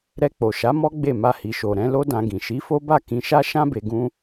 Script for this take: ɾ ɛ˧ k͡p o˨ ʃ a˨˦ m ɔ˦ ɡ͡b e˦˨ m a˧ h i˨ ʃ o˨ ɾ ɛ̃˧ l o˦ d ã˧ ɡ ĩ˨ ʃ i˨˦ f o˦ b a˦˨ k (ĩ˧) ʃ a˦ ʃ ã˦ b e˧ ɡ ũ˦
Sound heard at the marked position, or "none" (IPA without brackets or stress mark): ĩ˧